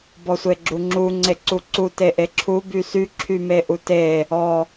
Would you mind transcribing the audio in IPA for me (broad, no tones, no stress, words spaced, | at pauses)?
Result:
bɔsʷeɡ͡ǁuŋ͡ǁu ŋ͡ǀeǀuǀu teʔeǁʰu bysy ǁʰymeʔute | ɔ